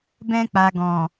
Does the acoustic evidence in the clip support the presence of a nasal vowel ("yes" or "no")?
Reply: yes